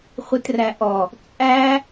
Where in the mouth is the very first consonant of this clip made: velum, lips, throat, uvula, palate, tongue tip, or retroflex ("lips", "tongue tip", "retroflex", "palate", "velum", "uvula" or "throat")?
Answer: uvula